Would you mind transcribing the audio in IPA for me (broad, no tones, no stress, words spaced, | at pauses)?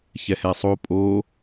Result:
çɛhɛsˤo pʼo